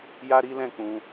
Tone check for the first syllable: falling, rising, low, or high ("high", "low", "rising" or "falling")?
high